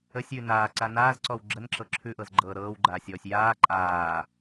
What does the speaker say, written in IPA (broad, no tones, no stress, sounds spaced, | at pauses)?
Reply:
ə sʲ ʉ n aː ǀ a n aː z ǀ ɔ w ɡ͡ǁ ə n ǁ ɤ ǁʰ ʉ ʔ ɤ z ɡ͡ǃ ɤː ɾ ɤː w ɡ͡ǃ aː sʲ ɔː sʲ j aː ǃʼ aː